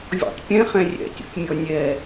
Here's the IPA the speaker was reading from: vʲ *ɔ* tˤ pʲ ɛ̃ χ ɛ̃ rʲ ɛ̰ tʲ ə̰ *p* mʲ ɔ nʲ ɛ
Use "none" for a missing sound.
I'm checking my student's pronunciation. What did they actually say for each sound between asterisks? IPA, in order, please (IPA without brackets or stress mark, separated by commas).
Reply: ɔ̰, p